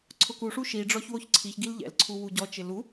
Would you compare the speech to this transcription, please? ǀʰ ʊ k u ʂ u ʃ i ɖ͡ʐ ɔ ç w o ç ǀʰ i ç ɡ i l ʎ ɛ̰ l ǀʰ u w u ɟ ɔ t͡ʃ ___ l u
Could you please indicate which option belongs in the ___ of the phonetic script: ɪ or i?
ɪ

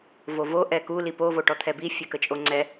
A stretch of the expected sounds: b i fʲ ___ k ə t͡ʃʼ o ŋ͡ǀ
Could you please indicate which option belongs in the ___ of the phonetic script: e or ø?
ø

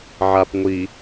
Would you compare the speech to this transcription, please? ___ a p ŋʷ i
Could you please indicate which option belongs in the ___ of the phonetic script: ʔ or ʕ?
ʕ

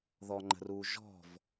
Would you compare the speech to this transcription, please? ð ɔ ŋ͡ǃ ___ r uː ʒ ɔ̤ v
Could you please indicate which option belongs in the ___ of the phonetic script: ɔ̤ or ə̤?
ə̤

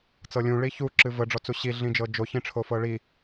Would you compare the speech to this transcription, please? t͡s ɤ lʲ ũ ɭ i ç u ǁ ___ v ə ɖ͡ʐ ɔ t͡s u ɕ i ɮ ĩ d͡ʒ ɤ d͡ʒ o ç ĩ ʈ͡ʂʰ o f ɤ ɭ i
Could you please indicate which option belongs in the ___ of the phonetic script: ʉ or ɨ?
ɨ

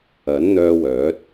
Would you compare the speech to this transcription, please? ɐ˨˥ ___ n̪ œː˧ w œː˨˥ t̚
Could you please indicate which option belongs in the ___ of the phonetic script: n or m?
n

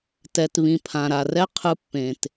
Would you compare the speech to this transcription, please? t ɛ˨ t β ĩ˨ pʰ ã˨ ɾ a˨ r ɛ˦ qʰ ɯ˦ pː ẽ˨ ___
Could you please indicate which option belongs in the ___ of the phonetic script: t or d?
t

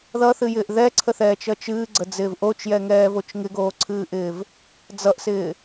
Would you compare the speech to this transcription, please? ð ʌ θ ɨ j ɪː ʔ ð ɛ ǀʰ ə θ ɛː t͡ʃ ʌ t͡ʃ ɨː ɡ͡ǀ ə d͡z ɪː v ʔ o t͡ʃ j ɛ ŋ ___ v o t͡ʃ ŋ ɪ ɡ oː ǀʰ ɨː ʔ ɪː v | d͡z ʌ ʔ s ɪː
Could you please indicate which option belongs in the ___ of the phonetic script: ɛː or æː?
ɛː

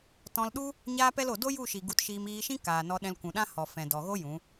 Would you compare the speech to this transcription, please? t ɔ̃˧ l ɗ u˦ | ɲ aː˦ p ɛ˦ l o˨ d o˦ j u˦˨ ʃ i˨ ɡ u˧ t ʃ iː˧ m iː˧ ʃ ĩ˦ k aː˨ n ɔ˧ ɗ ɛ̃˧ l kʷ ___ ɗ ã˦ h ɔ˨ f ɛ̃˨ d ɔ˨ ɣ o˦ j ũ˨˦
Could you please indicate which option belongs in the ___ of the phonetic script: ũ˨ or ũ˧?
ũ˨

